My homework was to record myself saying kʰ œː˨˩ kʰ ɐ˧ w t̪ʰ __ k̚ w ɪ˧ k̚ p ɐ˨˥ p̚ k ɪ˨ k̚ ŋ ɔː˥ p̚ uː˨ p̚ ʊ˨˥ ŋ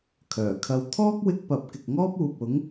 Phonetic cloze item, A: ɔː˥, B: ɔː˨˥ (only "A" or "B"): A